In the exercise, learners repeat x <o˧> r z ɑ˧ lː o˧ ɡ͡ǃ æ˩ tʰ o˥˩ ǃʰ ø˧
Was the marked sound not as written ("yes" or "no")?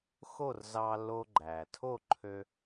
yes